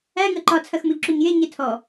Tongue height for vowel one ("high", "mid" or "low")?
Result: low